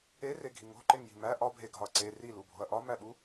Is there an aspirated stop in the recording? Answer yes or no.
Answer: no